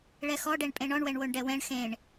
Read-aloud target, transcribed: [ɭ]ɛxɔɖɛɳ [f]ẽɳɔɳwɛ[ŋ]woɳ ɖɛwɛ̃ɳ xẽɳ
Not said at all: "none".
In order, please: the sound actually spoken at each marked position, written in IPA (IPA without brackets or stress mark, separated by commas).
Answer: ɭ, pʼ, ɳ